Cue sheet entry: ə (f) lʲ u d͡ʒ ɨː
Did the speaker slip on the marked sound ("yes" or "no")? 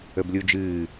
yes